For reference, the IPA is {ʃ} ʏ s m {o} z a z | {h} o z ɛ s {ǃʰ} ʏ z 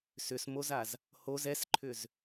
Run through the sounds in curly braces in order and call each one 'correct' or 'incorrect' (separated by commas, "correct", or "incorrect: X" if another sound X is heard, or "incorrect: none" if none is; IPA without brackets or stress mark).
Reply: incorrect: s, correct, correct, correct